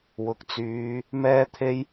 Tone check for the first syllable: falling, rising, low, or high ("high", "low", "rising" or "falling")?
low